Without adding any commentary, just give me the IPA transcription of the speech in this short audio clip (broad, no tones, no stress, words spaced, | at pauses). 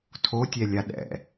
tʰotʲɛlʲa ɗɛ̰